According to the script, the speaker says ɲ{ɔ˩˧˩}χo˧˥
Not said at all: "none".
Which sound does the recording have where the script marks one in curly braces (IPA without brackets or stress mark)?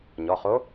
ɔ˩˧˩